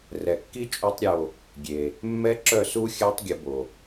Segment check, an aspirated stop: absent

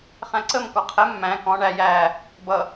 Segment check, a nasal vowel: present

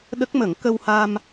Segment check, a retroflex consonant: absent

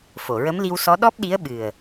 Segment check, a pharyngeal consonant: absent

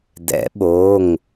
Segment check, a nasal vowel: absent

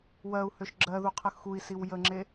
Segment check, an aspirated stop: present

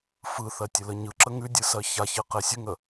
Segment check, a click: present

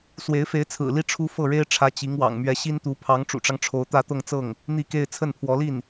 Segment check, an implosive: absent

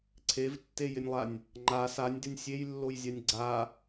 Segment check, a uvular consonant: absent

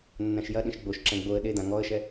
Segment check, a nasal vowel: present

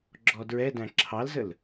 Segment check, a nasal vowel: present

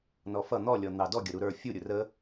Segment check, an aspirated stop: absent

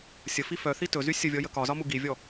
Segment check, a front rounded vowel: present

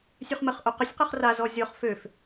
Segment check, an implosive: absent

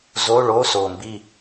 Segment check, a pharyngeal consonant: absent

